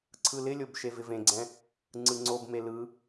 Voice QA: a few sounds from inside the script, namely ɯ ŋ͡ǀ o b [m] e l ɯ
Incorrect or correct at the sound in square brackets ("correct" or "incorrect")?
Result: correct